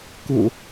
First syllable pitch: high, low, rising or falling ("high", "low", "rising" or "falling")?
low